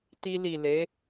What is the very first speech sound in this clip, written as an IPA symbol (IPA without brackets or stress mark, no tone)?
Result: t